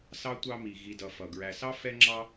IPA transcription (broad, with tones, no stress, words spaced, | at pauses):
sɑ˥tʷɑ˦mi˨ ɣi˨dʌ˨ fʌ˩ɡɹæ˨sɑ˥ fɛ˥ŋ͡ǁɑ˥